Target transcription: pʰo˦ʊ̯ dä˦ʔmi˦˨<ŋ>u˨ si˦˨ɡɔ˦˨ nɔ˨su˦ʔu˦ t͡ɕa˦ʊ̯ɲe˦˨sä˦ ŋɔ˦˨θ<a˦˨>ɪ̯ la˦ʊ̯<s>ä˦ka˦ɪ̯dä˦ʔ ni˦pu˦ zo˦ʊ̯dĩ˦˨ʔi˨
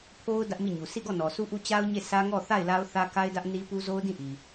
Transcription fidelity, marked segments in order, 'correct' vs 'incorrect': incorrect: ɲ, correct, incorrect: θ

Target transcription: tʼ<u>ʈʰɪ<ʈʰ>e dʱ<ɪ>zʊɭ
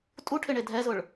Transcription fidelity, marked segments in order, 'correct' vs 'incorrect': correct, incorrect: ɳ, incorrect: ɛ

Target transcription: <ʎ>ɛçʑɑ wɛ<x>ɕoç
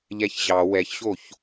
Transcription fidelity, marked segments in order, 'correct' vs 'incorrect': correct, incorrect: ç

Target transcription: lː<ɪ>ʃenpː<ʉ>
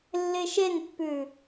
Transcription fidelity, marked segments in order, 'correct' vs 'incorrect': correct, correct

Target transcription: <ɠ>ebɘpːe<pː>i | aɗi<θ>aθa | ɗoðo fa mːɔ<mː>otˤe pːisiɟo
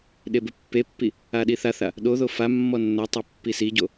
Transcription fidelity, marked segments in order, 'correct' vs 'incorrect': incorrect: ɗ, correct, correct, incorrect: nː

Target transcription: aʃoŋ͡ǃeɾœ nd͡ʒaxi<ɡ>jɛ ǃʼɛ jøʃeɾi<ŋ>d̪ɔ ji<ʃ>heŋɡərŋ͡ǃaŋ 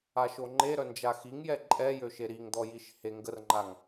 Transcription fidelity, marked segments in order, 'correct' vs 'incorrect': incorrect: ŋ, correct, correct

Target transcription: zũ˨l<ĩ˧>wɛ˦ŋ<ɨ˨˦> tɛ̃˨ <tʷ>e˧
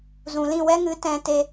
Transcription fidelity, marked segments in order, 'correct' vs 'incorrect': incorrect: ĩ˦˨, correct, incorrect: t

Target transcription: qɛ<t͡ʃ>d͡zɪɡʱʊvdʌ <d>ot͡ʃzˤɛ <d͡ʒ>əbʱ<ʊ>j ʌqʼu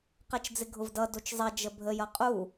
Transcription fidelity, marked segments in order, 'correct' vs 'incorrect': correct, correct, correct, incorrect: ə

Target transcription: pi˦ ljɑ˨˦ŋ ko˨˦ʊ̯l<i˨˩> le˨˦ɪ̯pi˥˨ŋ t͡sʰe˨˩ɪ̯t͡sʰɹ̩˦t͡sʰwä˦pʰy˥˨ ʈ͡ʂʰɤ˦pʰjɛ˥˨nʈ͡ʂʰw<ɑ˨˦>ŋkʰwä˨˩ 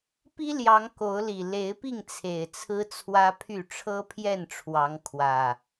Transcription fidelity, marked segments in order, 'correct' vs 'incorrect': correct, correct

